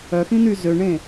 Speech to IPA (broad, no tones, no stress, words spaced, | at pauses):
œxĩn̪y zøɳẽ